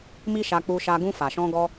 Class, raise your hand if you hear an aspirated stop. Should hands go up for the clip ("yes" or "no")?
no